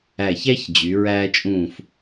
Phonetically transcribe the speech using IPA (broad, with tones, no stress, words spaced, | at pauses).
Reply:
æ˧˩çæ˥ç d͡ʑy˩˧ ɹæː˧t͡ʃʼũː˧˩f